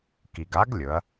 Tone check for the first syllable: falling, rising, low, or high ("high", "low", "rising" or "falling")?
low